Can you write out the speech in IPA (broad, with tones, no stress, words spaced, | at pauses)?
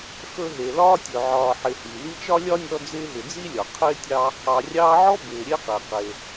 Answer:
xɵ˦ɦe˨lɒː˥tʲɵ˨ ʕɒː˨ħɪ˨hi˩ li˦t͡ʃɒ˥lʲɒ˥nʲɔ˦ d͡zɪː˦ɦɪ˨d͡zi˥lʲɒ˩ qʰɪː˥tʲɑ˦ | ɑ˨rʲɑː˦ʕɔ˥ bɪː˨ɾʲe˥qe˩ qe˩